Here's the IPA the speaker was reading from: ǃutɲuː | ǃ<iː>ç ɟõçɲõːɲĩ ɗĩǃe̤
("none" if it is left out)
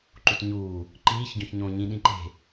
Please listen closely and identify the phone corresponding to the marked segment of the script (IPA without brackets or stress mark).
iː